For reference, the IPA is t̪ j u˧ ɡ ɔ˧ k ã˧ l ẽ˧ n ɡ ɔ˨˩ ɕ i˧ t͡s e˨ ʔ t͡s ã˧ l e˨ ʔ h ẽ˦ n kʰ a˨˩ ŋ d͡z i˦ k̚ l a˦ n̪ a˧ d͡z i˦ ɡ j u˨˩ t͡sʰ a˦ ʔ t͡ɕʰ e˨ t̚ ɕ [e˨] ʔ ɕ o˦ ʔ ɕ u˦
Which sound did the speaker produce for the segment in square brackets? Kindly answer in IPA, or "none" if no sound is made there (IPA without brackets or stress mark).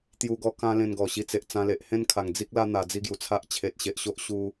e˨